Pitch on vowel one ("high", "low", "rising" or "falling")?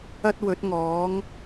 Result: high